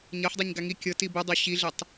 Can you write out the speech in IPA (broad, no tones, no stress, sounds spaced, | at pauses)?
ɲ ɤ ħ dˤ i ɲ ɡ a ŋ i kʲ ɤ t i b ɯ dˤ o ɕ i ɮ e tˤ